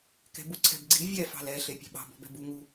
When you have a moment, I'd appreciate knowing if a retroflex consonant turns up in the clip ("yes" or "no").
no